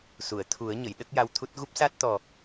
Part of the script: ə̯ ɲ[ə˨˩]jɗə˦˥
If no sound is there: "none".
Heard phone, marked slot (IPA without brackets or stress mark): ə˨˩˨